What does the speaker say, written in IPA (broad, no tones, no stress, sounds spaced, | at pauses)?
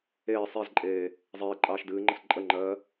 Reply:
eː sˤ e z ǃʼ eː | zˤ eː ǃʼ ɑː ʃ d ɨː ŋ͡ǃ ə s ǃʼ ə ŋ͡ǃ ɜː